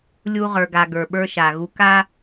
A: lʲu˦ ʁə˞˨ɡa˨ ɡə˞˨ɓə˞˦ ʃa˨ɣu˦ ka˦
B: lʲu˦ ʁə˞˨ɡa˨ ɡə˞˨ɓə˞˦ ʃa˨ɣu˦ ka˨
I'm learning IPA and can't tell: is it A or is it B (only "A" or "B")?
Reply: A